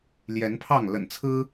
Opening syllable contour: rising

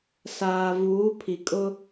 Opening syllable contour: low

